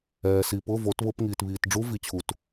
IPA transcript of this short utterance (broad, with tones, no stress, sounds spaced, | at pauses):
ɛː˨ s i˨ p ʊ˧˥˧ v o˨˦ t β ʊ˧˥˧ p ŋ iː˨ t β iː˨ t ɖ͡ʐ u˦˥ v i˨ t͡ɕʰ u˨ t